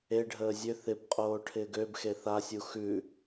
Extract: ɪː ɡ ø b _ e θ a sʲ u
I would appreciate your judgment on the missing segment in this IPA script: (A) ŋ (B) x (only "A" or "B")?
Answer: B